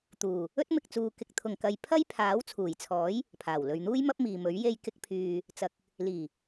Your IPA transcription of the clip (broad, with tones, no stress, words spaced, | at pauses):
t̪uː˨˩ | ɵ˥t̚mɪ˨k̚t͡suː˨ kɪ˨k̚t̪ʰʊ˨˩ŋ kɐ˨j pʰɐ˥j pʰaː˨˥wt͡sʰuː˨˩jt͡sʰɔː˨˥j | pʰaː˨˩wlɵ˨ɥn̪uː˥j mɐ˥p̚miː˨mɵ˨˥ɥ je˧jkɪ˧k̚pʰyː˨ | t͡sɐ˨k̚ | liː˨˩